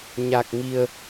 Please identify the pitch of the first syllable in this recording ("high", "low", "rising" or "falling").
low